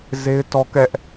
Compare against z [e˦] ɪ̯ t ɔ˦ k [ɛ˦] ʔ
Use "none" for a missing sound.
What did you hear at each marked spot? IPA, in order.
e˦, ɛ˦

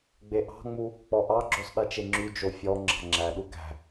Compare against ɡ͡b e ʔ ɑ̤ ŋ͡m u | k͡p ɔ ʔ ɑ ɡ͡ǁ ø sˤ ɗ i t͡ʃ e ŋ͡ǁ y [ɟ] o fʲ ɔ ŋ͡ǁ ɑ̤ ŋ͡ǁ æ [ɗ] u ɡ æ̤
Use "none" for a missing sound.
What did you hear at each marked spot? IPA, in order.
d͡ʒ, ɗ

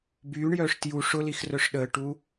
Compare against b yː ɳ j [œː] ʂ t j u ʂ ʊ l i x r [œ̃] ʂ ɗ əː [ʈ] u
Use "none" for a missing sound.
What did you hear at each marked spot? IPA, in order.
œː, œ, ʈ

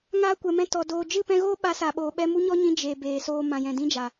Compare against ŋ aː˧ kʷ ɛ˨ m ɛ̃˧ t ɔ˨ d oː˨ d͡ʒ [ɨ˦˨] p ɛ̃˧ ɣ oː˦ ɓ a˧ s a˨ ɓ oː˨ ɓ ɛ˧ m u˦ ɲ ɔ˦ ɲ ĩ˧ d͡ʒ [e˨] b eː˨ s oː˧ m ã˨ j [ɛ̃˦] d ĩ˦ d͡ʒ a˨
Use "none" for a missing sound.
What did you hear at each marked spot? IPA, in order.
ɨ˦˨, e˨, ɛ̃˨

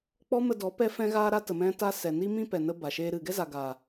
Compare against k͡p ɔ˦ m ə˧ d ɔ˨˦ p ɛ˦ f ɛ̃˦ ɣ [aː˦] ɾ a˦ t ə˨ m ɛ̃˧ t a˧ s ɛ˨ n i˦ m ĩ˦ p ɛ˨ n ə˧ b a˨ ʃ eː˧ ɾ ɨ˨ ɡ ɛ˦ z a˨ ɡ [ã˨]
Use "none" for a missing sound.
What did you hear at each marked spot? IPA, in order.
aː˦, a˨

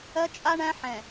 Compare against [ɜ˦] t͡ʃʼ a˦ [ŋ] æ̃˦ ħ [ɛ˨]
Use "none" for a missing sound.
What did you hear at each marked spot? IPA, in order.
ɜ˦, ɳ, ɛ̃˨

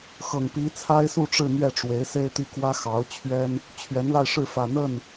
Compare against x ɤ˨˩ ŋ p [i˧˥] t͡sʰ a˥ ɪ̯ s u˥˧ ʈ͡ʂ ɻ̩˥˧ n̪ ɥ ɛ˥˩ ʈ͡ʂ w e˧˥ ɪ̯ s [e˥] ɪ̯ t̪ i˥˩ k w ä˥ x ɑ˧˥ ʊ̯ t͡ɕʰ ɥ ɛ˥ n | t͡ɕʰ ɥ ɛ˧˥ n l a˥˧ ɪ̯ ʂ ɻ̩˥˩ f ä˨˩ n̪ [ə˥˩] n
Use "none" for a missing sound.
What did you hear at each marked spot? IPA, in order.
i˧˥, e˥, ə˥˩

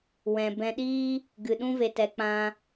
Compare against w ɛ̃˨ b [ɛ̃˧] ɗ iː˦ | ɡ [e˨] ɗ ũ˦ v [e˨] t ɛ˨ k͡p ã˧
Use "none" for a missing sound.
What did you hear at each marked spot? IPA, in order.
ɛ̃˧, ɨ˨, e˨

